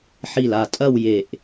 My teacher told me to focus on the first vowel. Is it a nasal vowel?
no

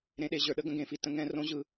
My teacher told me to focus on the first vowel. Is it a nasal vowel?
yes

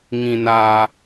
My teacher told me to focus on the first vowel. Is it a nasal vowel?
yes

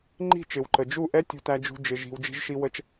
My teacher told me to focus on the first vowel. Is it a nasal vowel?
no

